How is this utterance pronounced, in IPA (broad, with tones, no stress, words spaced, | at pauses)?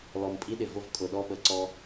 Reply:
lɔ˨mpʼi˦ɗɪ˨ vʊ˦vkʼʊ˨ɗɔ˦ɓə˨ ǀɔ˦